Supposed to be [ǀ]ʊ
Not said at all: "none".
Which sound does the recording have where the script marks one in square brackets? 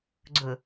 ɡ͡ǀ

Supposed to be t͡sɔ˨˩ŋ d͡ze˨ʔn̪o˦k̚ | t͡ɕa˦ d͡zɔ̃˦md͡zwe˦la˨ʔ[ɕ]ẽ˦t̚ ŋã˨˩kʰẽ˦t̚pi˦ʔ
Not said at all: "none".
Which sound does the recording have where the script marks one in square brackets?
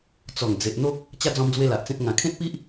t͡s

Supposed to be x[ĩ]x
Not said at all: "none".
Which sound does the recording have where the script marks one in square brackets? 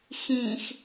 ĩ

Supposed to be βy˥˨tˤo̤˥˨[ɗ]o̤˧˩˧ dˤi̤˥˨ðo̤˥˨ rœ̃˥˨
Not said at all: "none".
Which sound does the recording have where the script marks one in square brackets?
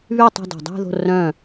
d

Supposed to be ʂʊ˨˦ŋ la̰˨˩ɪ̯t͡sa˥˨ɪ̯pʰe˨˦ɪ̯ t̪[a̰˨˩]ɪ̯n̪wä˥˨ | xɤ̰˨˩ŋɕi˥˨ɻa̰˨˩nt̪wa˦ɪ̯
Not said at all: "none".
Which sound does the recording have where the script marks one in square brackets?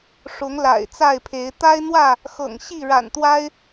a˦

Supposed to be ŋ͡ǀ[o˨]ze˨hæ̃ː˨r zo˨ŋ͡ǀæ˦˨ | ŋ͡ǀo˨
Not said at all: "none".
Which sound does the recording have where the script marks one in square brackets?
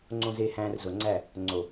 õ˨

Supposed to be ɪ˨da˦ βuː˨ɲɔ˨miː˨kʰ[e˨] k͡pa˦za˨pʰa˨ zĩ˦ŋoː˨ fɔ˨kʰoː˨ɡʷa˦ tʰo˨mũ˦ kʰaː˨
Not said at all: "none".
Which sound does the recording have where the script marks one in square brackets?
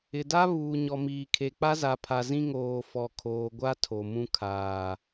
e˨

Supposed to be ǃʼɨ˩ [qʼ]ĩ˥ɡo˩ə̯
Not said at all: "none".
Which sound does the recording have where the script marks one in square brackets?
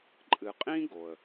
qʼ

